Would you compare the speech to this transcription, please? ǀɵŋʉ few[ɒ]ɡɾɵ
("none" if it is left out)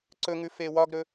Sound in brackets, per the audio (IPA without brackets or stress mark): ɒ